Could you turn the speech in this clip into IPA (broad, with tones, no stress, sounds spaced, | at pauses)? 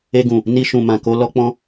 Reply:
e˧ ɡ ũ˨ | n i˧ ʃ ũ˨ m ã˨ k o˧ l ɔ˧ k͡p ɔ̃˧